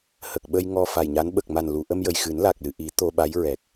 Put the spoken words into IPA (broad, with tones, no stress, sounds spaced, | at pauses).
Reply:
h ə˨˩ k̚ ɓ ə˧ j ŋ ɔ˧ f a˨˩ j ɲ a˧˥ n ɓ ə˨˩ k̚ m a˨˩ n l u˨˩˨ ʔ ə˧ m j ə˨˩ j x ɨ˨˩˦ n l a˨˩ k̚ l ɨ˨˩˨ ʔ i˨˩˦ t̪ o˧ ɓ a˧˥ j ɹ ɛ˨˩ k̚